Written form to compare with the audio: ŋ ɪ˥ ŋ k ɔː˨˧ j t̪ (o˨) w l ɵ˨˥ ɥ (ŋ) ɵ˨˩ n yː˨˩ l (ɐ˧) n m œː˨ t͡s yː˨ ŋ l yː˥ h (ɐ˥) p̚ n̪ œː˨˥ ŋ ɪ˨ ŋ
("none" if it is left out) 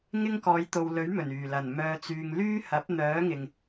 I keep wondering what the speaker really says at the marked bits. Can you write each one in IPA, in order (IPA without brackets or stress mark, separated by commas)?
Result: o˨, m, ɐ˨˩, ɐ˨˥